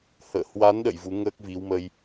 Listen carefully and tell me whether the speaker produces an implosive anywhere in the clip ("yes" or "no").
yes